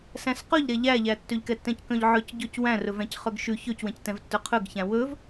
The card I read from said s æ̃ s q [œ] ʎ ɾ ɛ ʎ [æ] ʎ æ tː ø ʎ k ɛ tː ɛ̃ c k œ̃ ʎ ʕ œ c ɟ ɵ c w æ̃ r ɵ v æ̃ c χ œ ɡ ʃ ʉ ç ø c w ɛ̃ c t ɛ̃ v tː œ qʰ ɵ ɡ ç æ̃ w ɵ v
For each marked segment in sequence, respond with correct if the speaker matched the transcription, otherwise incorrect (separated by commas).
incorrect, correct